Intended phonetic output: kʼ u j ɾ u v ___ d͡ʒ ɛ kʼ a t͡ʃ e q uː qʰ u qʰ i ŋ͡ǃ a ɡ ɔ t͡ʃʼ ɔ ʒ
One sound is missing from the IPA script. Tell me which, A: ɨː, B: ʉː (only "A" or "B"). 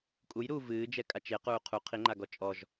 A